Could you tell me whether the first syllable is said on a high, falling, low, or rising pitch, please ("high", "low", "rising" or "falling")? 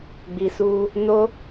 low